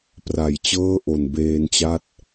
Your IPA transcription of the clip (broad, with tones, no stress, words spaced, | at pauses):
pra˩˦jt͡ɕɤː˥˩ ʔo˨˩nbeː˧nt͡ɕa˥˩t̚